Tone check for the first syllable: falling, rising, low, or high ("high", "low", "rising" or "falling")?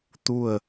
falling